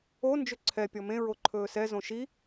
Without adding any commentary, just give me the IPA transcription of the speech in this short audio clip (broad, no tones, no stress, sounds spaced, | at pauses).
o n d͡ʒ ɵ ǀʰ ɛ pʲ ɔ m ẽ ɹ o ǃʰ ɵː s ɛ z õ ʃ i